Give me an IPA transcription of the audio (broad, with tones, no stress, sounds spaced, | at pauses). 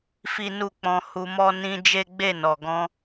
f i˦ n u˦˨ k͡p ɔ̃˧ h u˧ m ɔ˦ n ĩ˦ d͡ʒ e˦ ɡ͡b e˦˨ n ɔ˨ ɡ ɔ̃˧